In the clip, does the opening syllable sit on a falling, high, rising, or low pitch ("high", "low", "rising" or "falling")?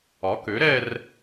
rising